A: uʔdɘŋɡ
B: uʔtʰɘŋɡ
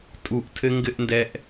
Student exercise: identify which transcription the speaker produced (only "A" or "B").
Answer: B